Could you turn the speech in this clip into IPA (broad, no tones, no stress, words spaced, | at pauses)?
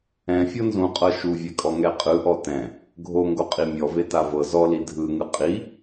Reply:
ɛ̃ fʲɤnzũqʼɤ ʃuvʲɛkʼɔ ŋɛqʼɯʔɔ tɛ̃ | ɡʱoŋɡo qʼimʲɔ vetavɤ zɔli dʱɯŋɯ qʼi